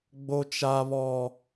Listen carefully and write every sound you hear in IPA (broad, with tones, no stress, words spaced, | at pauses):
ɡ͡bo˦t͡ʃa˦βɔ˦